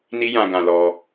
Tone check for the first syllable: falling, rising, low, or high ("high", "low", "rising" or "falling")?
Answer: high